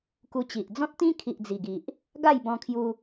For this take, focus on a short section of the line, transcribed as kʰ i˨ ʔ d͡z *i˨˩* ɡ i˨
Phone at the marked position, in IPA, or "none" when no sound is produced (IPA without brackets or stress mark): i˨˩